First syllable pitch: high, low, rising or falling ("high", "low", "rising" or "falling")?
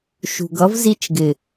low